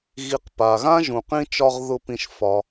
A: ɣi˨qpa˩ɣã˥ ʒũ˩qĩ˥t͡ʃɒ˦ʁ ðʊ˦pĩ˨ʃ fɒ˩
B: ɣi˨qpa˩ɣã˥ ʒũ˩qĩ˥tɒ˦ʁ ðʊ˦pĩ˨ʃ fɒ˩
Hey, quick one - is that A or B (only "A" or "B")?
A